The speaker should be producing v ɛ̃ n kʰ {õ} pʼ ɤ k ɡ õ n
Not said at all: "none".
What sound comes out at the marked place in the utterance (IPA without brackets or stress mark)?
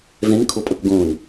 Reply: o